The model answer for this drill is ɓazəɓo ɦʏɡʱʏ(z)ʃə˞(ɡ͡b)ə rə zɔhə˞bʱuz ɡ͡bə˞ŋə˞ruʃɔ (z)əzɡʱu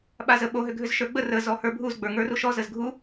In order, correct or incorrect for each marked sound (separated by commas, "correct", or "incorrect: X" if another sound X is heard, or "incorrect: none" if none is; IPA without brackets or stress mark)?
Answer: correct, correct, correct